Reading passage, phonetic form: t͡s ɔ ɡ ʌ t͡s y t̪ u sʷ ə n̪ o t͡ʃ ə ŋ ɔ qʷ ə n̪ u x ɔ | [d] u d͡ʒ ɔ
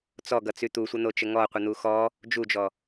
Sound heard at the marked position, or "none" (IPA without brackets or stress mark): d͡ʒ